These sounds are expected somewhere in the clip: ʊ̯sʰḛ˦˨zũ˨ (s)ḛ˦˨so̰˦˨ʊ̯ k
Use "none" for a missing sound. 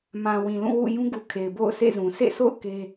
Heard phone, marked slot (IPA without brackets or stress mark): s